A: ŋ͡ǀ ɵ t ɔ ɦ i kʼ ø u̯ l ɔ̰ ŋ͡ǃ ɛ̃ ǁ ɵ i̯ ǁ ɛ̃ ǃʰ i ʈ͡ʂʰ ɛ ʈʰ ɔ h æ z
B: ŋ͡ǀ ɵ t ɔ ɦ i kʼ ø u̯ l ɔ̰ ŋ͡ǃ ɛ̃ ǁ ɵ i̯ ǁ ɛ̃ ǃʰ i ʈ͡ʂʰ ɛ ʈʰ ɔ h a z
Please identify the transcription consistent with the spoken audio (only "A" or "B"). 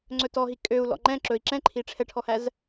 A